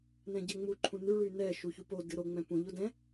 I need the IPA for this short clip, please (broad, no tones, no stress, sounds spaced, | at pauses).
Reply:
n ɛ̃ ɟ ɛ ŋ͡m u ǃʰ ũ n y ɭ y n ɛ ʃ u ç u p o d ɨ ɾ o ŋ͡m ɛ̃ p ũ ʎ o d ɛ̃